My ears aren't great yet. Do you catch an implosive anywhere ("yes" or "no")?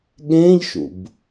yes